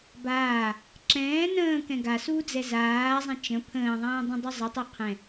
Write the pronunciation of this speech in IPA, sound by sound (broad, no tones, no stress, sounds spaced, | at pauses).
b aː | ǁ ɛ̃ː n ə̃ː k ɛ̃ ɡ a s uː d͡z ɛ z aː zˤ ɛ̃ t͡ʃ ə̃ pʰ ə̃ː ðˤ ɛ̃ː dˤ ə̃ dˤ ɵ zˤ ə tˤ ɛ qʰ ɛ̃